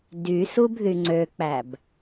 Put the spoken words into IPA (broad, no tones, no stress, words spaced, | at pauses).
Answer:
dysub ðyŋ͡ǀøk͡pæb